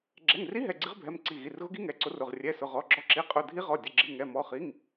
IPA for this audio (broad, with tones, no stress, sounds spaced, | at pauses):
ɡ͡ǁ ɛ˩˧˩ ŋ r i˧˥ ɦ ɛ˩˧˩ ɡ͡ǀ i˧˥ ʁ bʱ ɛ˩˧˩ m ǀ i˩˧˩ ɣ i˩˧˩ r ɣ ʊ˧˥ ɡ i˧˥ ŋ ɛ˩˧˩ ǀ ʊ˧˥ r ʊ˩˧˩ ʁ rʲ ɛ˩˧˩ s ʊ˩˧˩ ʁ ɔ˩˧˩ ɡ͡ǁ ɔ˧˥ ǁ i˩˧˩ qʼ ʊ˩˧˩ dʱ i˧˥ ʁ ɔ˩˧˩ dʲ ʊ˩˧˩ ɡ͡ǁ i˩˧˩ ŋ ɛ˩˧˩ m ɔ˩˧˩ χ i˩˧˩ ŋ